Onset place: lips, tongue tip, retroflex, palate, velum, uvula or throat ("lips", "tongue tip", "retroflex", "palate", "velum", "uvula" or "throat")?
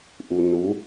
throat